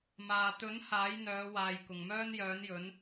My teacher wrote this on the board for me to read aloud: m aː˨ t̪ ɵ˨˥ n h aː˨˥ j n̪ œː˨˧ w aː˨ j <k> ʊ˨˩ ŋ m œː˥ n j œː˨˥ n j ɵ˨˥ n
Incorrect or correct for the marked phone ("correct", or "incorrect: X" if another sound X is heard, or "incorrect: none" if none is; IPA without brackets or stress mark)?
correct